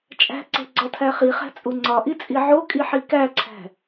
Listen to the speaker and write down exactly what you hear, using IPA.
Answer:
t͡ʃʼ æ̤ ǀ e̤ ɡ͡ǀ ɒ tʰ æ χ i χ æ̤ t͡sʼ u ŋ͡ǀ ɒ ʔ i t͡sʼ i ʕ o kʼ i ħ i k æ ǀʰ æ̤

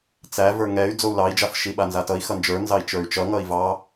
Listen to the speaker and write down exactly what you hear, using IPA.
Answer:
t͡s æ v ə˞ ŋ ɛ y̯ d͡z o u̯ l ɑ i̯ d͡ʒ a f ʃ i ɓ a n z a t ʌ i̯ x ʌ n d͡ʒ ə˞ n z ɑ i̯ t͡ʃ ə˞ y̯ t͡ʃ ʌ ŋ ʌ i̯ v ɑ

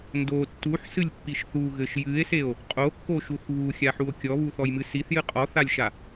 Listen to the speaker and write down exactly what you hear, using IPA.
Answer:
n d o tː u ħ s ɨ lʲ pː i ʃ θ u ɣ ɘ ʃ j ɨ e̯ s e o̯ | qʼ o kː o ʃ u θ β u xʲ a ħ u o̯ kʲ ɔ β u θ ɔ j m ɨ s i θ j ɨ qʼ ɔ θ a lʲ ʃ a

